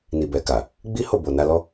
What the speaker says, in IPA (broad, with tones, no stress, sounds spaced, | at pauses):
n i˨ b ɛ˨ k a˨ | ɡ͡b i˦ h o˦˨ b o˨ n a˧ l ɔ˦